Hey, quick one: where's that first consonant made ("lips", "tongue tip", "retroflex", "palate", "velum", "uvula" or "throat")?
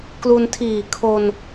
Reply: velum